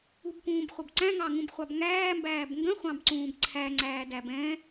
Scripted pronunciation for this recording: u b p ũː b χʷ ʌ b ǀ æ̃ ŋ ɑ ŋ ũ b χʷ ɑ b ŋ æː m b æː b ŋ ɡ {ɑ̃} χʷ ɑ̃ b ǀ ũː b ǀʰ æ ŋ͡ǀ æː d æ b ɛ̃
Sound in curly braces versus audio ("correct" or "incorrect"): incorrect